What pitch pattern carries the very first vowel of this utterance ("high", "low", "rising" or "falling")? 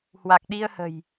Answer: low